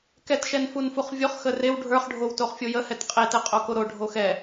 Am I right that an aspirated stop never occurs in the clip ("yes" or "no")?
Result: yes